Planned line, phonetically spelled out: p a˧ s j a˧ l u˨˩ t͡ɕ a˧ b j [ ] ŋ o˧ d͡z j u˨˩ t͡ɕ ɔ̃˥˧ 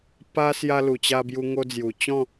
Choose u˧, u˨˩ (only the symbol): u˧